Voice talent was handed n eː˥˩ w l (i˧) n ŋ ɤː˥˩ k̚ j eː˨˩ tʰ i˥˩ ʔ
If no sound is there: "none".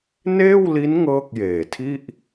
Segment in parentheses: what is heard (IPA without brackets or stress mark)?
i˦˥